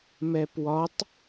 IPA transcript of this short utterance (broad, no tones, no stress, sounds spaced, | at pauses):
m ɛ p w ɒ tˤ